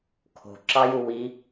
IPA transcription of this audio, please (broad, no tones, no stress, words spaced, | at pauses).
kʰo̤ǁɑju wi